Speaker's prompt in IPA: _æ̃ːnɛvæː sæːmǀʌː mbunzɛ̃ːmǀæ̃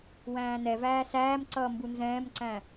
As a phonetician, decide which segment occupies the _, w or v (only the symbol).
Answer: w